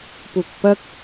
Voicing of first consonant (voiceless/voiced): voiceless